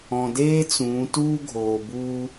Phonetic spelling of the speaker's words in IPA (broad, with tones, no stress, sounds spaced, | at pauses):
ɔ̃˩ d eː˥ t͡s ũː˩˧ t uː˥ ɡʱ oː˩ b uː˧